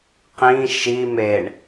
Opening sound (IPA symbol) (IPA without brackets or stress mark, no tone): q